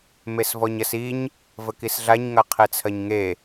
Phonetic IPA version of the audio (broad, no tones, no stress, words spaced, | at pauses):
mesvɔɲɐsiɲ | vəkisɮaɲŋɐ qʰet͡sʰɐɲŋe